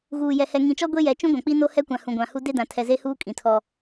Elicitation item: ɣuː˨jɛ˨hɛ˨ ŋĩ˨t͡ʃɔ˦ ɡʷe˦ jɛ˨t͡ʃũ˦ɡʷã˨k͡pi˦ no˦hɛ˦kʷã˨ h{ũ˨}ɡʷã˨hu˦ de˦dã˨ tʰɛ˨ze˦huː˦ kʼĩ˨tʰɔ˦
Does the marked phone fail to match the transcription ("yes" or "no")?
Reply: no